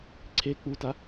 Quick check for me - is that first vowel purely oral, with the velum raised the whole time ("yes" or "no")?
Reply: yes